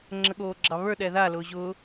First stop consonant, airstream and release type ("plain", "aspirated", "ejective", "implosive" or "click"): click